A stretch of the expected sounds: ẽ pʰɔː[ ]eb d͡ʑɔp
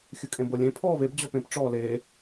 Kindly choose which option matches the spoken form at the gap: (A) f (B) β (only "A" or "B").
B